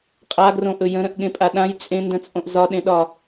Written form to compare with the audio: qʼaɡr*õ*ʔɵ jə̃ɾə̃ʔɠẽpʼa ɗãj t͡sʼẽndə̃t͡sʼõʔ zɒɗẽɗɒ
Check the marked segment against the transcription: correct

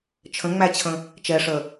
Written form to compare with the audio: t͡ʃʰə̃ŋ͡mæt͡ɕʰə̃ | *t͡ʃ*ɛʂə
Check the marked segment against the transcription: correct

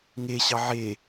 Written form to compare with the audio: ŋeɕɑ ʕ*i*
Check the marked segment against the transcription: incorrect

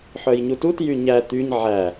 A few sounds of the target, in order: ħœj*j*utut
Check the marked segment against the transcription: incorrect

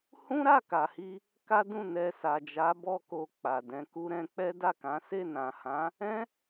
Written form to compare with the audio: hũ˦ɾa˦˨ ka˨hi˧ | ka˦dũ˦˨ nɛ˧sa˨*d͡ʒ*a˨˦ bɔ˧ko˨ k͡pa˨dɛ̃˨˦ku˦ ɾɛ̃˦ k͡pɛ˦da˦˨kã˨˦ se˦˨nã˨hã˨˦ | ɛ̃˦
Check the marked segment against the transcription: correct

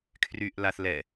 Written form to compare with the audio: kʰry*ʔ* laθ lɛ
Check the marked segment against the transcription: correct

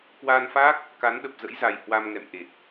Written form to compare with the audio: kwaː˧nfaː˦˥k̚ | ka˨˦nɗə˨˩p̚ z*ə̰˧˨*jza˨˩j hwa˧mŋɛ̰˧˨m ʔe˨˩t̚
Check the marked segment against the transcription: incorrect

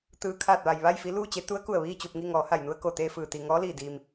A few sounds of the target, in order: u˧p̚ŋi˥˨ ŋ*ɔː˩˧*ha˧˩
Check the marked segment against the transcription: correct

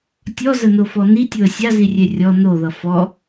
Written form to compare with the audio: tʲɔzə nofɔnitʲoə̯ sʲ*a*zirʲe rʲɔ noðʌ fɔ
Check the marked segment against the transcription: correct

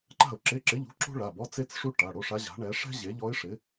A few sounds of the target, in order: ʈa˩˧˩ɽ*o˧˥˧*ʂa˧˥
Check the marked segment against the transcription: correct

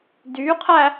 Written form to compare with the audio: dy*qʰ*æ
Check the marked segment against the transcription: correct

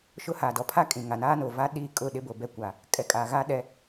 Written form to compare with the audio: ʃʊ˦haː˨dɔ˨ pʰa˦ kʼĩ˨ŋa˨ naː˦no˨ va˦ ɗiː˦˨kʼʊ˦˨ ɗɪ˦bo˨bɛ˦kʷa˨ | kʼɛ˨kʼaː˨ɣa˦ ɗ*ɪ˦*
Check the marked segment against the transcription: incorrect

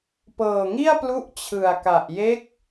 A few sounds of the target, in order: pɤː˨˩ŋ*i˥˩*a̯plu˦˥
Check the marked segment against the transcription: correct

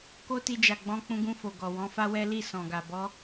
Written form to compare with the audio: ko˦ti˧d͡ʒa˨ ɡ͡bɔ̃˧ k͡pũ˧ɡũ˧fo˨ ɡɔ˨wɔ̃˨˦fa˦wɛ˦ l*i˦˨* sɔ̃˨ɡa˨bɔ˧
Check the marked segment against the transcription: correct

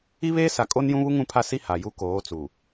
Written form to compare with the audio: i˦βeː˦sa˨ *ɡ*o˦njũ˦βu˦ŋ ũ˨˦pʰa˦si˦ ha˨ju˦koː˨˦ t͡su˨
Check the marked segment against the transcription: incorrect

